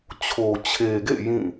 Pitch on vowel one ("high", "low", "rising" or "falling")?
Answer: low